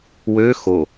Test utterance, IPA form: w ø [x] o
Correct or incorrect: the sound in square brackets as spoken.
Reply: correct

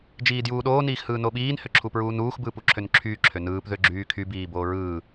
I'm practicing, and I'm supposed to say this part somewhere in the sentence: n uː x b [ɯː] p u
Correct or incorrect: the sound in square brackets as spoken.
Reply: correct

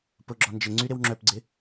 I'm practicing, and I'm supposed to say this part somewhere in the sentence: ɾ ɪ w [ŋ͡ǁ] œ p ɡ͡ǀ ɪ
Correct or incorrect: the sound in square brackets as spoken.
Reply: correct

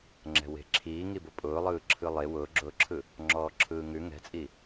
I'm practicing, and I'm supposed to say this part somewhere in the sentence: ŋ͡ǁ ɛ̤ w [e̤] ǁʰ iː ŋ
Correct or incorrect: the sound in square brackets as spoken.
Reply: correct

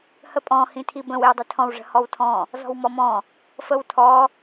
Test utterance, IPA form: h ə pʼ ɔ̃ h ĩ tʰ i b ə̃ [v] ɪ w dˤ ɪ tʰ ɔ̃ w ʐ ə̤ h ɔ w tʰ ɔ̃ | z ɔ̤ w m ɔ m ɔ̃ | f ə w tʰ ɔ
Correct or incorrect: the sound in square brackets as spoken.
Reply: incorrect: w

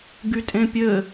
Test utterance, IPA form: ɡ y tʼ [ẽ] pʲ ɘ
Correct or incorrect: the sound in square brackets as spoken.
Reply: correct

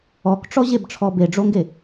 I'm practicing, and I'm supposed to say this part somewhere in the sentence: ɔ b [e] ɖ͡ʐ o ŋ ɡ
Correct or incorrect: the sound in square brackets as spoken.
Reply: correct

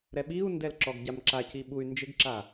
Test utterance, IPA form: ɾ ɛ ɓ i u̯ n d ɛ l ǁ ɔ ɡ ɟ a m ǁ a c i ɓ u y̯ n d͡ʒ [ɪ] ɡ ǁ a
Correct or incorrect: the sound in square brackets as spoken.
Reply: correct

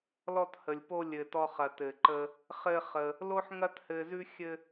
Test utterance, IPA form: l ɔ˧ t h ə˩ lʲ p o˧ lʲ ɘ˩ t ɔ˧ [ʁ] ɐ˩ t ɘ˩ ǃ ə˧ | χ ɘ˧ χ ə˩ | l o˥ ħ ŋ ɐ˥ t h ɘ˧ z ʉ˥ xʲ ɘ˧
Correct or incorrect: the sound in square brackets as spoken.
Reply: incorrect: χ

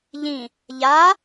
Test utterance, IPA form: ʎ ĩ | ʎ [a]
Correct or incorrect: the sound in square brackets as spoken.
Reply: correct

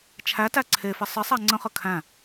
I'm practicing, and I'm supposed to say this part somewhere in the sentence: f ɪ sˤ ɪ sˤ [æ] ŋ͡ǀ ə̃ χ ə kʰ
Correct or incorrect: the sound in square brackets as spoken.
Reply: correct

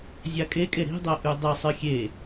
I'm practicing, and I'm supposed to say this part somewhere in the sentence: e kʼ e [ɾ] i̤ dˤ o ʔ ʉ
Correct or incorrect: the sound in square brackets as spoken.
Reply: correct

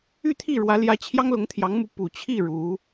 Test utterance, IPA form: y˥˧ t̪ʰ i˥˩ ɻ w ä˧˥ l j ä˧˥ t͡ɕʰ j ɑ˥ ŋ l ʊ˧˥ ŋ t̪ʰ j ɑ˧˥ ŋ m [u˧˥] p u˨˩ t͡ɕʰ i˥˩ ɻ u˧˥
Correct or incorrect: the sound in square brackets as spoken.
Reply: correct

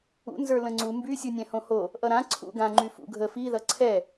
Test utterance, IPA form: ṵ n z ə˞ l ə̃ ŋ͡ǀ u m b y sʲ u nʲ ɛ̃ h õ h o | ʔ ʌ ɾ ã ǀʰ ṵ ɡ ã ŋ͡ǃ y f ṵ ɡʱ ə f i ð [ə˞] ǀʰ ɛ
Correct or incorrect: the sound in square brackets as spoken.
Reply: incorrect: ʌ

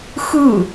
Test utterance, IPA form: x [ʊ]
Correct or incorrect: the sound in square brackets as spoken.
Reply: incorrect: ɯ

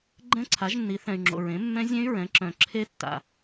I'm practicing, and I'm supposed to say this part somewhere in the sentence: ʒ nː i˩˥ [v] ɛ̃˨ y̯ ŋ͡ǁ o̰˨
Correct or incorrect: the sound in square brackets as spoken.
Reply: incorrect: θ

